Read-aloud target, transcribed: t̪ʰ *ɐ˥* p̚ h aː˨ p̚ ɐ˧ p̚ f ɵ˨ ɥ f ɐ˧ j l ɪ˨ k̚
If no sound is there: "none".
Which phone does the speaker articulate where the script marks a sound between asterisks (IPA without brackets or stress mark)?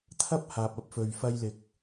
ɐ˥